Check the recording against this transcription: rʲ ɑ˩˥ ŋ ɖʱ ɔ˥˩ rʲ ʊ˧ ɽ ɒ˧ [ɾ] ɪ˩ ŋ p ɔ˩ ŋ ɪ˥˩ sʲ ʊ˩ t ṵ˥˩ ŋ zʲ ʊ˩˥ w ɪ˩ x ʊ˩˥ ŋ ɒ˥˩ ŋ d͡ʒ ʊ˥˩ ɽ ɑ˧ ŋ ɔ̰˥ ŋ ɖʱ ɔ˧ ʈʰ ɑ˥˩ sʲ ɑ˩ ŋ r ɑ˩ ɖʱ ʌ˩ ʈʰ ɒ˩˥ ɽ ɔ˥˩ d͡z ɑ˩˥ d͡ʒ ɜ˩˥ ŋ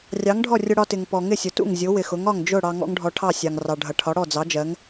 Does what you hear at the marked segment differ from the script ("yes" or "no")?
yes